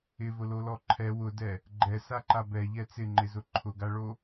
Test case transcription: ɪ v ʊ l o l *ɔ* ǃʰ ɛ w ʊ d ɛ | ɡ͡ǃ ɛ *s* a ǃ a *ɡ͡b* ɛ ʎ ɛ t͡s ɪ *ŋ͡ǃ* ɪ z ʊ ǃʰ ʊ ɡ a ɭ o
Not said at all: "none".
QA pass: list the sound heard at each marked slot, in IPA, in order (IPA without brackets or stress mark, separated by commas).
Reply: ɔ, s, b, ŋ͡ǃ